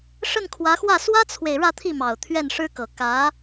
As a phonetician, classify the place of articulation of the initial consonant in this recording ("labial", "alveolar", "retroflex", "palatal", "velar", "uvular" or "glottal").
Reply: retroflex